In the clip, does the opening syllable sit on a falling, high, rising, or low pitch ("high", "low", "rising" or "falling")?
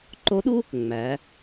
rising